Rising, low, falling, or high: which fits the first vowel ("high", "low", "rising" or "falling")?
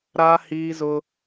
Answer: high